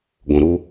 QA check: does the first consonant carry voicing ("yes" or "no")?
yes